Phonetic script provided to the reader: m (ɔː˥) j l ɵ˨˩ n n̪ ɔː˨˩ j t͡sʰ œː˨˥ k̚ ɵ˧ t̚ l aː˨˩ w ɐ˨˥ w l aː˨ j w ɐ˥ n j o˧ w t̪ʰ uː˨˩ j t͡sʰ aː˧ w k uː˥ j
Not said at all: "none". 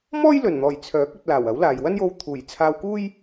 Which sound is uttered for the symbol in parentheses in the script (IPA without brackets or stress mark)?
ɔː˥